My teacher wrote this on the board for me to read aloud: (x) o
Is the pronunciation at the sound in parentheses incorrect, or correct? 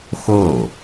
correct